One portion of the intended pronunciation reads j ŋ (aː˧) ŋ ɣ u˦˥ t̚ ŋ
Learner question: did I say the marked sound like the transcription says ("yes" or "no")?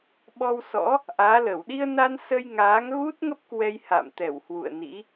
no